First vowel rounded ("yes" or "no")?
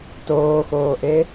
yes